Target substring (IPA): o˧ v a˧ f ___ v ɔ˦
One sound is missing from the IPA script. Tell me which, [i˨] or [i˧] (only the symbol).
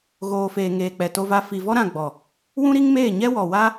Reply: i˨